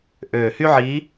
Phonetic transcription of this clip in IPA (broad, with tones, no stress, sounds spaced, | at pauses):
ʔ øː˨˩ h y˥ ʕ iː˧˥